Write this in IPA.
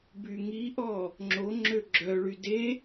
b y ŋ i ʔ ɔ | ŋ͡ǁ o ŋ͡ǁ ø ɡ͡ǁ œ ɭ y d e

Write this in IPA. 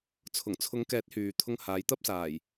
t͡sʰ ʊ˨˩ ŋ t͡sʰ ʊ˨˧ ŋ k ɛː˨˥ t̚ h yː˨ t̪ʰ ʊ˧ ŋ h aː˨˧ j t̪ ɐ˧ p̚ s aː˨˩ j

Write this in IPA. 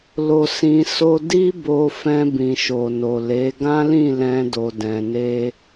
l o˧ s ĩ˧ s o˦ d i˦ b o˧ f ɛ̃˧ b ĩ˨ ʃ o˨ n o˨ l e˨˦ ɡ ã˦ l ĩ˦˨ l ɛ̃˧ d o˧ d ɛ̃˧ n e˦

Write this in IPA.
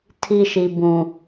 tʰ i˦ ʃ i˨ b ũ˨

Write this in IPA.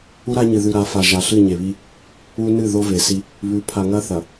u˦ ɾ a˦ ɲ ɨ˨ ð ʉ˨ ɾ a˨˦ f a˨ ʒ a˨ ɬ ɨ˦˨ ɲ e˨ β i˦ | u˦ n ɨ˦˨ ð o˦ v e˨ s i˦ | β ʉ˨˦ pʰ a˨ ŋ ɐ˦ θ ɐ˨

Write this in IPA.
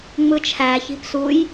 ŋ͡m ɯ t͡ʃʰ æ ç i̤ p s u j

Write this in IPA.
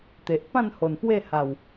t̪ e˨ ʔ p ã˥˧ n h o˨˩ n p w e˥˧ h a˨˩ w

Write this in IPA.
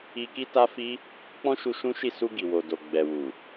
i˧ k i˦ t a˦ f i˦ | k͡p ɔ̃˦ ʃ u˧ ʃ ũ˦ ʃ i˦˨ s u˧ ɡ i˨ w o˨ d o˨ ɡ͡b ɛ˨ w u˨

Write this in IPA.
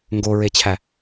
ŋ ɡ o ɹ e t͡ɕʰ æ

